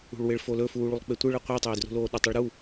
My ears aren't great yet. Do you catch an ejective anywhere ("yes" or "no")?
no